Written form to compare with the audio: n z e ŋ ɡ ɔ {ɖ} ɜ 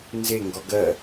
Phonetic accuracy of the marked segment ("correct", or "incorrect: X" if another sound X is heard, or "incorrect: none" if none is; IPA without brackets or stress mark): incorrect: ɡ